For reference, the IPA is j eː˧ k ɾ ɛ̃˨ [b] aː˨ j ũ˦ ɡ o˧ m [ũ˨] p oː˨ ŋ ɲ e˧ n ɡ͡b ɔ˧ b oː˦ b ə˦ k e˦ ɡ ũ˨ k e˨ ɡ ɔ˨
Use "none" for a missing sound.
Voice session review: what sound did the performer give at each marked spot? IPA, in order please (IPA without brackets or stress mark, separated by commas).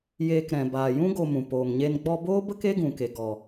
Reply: b, ũ˨